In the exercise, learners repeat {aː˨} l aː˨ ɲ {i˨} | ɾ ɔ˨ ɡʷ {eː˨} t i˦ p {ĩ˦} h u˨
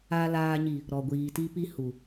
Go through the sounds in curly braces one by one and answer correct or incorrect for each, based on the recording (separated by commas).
correct, correct, incorrect, incorrect